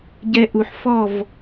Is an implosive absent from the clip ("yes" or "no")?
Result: yes